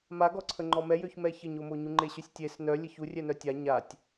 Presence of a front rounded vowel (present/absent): present